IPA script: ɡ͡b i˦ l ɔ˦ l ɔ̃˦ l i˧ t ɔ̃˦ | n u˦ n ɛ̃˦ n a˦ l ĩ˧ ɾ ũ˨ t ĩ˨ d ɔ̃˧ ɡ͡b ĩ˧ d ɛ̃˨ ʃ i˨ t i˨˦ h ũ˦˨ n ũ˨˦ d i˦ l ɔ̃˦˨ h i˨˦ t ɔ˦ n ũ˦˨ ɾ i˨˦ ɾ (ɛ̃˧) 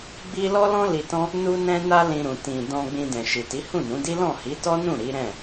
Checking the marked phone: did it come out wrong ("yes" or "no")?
yes